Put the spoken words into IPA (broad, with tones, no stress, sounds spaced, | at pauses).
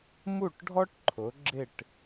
m u˦˨ ʈ ɖʱ ɔ˦ ʈ ǃʰ ʊ˩˧ ɡ͡ǁ ɪ˦˨ ʈ